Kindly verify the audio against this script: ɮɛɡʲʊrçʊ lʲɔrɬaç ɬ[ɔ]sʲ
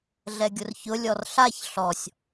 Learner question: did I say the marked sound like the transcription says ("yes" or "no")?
yes